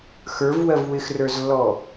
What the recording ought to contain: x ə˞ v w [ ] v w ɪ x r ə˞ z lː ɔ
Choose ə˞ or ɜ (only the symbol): ɜ